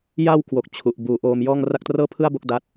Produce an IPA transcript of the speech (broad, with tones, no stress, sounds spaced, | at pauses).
j a˧ w k w o˨˩ k̚ t͡ɕʰ u˨˩ ʔ b uː˧ ʔ oː˧ m j ɔː˥˩ ŋ r a˦˥ k̚ t r ɤː˥˩ pʰ ɯ˥˩ a̯ b o˥˩ k̚ d a˦˥ t̚